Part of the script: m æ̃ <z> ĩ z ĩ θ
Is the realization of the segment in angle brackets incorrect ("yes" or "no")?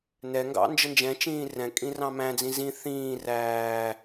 yes